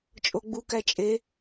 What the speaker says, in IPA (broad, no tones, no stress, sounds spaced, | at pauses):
t͡ʃʼ o ɡ͡b u k æ t͡ʃʼ e